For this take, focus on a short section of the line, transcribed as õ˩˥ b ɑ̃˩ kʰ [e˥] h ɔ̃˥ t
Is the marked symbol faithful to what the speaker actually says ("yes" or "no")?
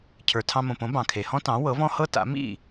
no